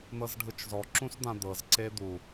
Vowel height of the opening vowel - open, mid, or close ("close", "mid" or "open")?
mid